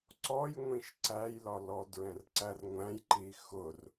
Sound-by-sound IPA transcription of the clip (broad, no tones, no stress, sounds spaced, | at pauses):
ǀ ɔ j ŋʷ ĩ ʃ ǀ æ j l ɒ l ɔ d ɹ ɛ̃ r ǀ æ r ŋʷ æ̃ j ǃ i x ʊ r